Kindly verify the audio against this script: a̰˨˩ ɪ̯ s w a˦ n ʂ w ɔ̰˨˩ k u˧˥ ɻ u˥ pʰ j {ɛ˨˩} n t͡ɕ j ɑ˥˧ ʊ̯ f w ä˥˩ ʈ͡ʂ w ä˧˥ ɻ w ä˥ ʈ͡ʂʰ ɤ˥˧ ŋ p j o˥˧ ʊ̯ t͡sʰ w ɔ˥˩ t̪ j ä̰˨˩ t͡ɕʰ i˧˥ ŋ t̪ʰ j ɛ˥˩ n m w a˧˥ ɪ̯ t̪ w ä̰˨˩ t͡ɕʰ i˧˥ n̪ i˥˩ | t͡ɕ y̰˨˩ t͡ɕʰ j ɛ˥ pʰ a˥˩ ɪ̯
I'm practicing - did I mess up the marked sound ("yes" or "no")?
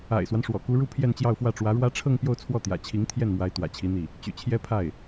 yes